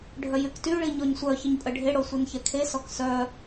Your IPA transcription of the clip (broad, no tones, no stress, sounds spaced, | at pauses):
ɖʱ œ j y k t y ɭ i ɲ ɔ ɲ sʷ œ ç ə ɲ pʼ ə ɖʱ e ɽ o sʷ i n ç ɛ kʰ e s ɔ k s œ